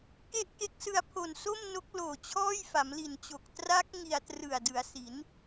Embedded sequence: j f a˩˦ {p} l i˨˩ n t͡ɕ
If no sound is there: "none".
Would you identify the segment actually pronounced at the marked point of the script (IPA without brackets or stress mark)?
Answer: m